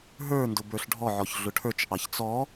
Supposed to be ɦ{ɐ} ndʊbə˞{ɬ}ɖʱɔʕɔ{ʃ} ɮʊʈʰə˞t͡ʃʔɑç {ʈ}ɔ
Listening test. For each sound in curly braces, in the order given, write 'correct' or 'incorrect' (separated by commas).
incorrect, correct, incorrect, incorrect